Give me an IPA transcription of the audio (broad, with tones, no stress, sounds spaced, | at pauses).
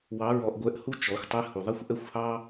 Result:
w ɑ˧˥ ɹ ɔ˧ ʔ ɡʷ ɛ˧˥ ʔ h u˥ t͡ʃ ɔ˩˧ xʷ tˤ ɛ˧˥ h u˩ ðˤ ɛ˥ xʷ ʔ ɛ˥ xʷ h ɑ˥